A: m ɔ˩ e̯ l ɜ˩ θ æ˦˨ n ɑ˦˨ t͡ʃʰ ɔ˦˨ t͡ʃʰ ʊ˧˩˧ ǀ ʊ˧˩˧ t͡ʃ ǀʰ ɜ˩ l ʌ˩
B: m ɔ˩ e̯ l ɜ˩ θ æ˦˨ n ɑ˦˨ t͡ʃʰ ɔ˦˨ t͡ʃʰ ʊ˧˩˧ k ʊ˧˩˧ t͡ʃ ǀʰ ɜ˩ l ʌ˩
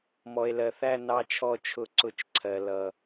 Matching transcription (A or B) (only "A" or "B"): A